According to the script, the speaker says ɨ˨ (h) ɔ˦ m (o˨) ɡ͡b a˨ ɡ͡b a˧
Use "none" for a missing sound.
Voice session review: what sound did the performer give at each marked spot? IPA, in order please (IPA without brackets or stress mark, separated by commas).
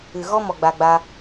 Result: ɣ, ɔ˨